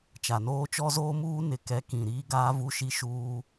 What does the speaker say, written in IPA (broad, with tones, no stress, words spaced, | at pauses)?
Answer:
t͡ʃa˨noː˦t͡ʃɔ˦zoː˦ muː˦nɪ˨ kɛ˨˦kĩ˨ ɾiː˦ɡaː˦ vu˦ʃi˦ ʃuː˦